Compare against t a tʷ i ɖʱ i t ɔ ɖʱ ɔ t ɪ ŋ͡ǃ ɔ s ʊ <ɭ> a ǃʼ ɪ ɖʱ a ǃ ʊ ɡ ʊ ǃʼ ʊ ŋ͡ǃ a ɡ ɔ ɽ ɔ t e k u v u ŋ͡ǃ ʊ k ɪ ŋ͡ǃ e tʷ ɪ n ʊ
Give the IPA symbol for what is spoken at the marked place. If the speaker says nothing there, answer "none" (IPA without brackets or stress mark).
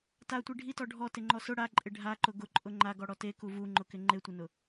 ɽ